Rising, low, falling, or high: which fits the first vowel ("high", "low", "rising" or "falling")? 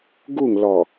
falling